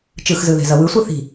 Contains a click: no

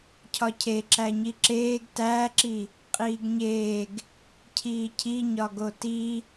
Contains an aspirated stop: yes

